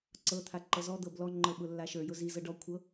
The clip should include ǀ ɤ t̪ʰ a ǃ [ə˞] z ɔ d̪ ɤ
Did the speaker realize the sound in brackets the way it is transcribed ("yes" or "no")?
no